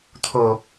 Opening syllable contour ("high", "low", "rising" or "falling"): low